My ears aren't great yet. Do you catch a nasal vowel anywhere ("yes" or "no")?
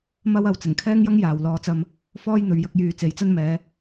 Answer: no